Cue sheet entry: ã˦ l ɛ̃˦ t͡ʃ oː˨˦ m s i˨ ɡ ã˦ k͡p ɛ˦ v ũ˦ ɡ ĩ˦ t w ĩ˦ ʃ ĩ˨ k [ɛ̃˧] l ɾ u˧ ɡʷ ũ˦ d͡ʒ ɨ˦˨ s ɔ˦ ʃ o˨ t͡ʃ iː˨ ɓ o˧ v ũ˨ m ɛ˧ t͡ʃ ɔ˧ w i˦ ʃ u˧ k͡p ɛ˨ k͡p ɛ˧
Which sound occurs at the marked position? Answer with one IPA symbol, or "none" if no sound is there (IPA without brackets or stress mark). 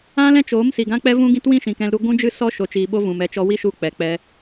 ɛ̃˧